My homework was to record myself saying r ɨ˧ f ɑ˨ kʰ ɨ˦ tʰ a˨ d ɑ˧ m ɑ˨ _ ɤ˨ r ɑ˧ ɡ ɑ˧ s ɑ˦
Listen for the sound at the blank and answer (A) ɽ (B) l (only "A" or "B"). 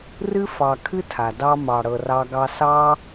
A